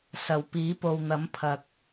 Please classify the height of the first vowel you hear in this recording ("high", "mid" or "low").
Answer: low